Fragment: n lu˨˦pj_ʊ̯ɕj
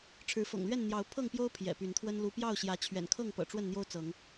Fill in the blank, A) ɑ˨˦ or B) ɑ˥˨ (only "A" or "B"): B